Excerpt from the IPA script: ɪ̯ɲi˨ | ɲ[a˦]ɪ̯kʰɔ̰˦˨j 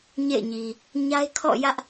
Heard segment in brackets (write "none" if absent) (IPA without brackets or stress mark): a˦